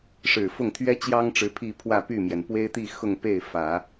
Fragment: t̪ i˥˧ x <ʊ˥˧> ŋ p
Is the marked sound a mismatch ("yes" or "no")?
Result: no